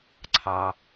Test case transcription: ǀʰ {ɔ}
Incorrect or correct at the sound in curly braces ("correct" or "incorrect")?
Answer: incorrect